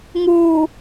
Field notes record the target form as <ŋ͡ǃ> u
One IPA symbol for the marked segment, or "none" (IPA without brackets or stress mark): ŋ